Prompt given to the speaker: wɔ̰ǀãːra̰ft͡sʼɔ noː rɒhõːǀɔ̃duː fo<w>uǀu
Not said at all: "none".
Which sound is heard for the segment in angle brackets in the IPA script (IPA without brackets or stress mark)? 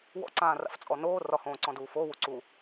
w